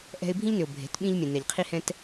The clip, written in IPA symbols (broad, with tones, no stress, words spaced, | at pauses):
ʔɛ̤˦ɪ̯ bʱĩ˦ʎnʏ˨ʊ̯ bʱe̤˨˦tɓĩ˦ʎ mʲɛ̃˨nɛ˨ʎqʰi˦hɛ̃˦t